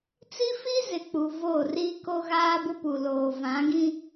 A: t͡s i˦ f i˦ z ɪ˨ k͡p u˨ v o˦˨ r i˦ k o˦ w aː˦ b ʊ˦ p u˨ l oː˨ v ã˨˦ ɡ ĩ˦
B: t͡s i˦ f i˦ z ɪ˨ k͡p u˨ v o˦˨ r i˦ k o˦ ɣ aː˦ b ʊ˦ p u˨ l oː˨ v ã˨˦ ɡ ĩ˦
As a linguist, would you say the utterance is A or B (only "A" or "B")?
B